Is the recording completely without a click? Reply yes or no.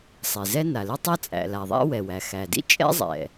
yes